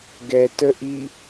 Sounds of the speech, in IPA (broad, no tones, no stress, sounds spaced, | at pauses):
ɡ ɛ t ə ʔ i